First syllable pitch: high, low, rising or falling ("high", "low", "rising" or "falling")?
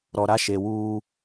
low